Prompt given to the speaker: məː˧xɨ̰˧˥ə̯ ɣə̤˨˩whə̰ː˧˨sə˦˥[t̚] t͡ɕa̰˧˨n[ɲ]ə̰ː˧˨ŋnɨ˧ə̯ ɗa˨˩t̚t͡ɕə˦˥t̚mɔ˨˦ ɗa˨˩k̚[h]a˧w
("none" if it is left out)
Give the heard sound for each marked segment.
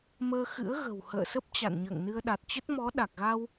p̚, ɲ, ɣ

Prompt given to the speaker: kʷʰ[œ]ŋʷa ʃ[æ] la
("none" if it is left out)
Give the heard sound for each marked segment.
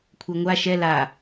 ɛ, ɛ

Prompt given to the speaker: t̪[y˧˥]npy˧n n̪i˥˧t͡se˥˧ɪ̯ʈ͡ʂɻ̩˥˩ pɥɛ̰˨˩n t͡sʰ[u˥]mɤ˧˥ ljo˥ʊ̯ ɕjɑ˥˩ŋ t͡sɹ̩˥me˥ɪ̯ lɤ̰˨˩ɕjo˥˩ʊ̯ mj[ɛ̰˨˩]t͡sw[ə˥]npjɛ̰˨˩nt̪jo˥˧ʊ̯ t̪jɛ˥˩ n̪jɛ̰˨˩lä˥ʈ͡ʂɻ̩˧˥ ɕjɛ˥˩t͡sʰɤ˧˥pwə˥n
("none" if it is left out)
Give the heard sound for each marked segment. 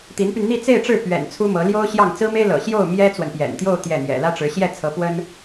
i˧˥, u˥, ɛ˥, ə˨

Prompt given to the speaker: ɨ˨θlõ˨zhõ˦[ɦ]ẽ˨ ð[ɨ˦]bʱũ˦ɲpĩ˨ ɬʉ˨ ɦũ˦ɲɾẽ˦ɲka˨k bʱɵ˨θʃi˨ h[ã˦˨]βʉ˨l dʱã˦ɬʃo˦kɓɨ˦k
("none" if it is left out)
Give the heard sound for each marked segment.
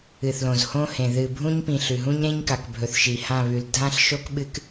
h, ɨ˨, ã˦˨

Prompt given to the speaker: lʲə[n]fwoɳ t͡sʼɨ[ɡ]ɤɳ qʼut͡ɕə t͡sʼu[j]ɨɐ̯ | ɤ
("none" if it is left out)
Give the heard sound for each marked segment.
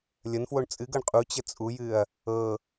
n, ɡ, j

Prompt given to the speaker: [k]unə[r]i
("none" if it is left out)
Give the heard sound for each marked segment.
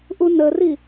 ʔ, r

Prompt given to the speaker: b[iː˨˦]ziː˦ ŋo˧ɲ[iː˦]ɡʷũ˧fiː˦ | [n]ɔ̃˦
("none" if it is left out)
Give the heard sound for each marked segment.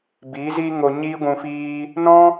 iː˨˦, iː˦, n

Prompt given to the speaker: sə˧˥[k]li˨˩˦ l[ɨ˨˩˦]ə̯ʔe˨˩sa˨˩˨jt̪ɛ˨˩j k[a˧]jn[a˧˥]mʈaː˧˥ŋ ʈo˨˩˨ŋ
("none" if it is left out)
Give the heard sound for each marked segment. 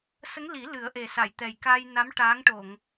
ŋ, ɨ˨˩˦, a˧, a˧˥

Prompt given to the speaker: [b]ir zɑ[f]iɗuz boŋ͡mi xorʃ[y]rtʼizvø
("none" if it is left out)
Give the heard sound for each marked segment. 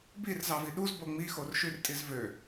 b, v, y

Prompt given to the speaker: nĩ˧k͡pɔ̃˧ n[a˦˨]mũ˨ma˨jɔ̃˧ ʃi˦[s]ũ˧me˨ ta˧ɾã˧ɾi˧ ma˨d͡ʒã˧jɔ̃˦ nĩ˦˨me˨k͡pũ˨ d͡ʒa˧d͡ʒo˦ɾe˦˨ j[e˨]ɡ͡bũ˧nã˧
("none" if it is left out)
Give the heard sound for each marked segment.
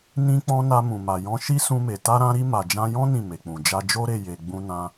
a˧, s, e˨

